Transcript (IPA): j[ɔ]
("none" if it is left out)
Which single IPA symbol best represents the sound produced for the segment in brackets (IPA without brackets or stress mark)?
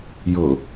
ɤ